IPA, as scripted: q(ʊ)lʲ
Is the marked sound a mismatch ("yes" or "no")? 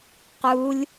yes